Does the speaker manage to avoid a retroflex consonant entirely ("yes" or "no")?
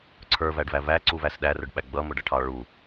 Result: no